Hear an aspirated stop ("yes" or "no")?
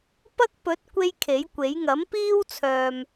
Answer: yes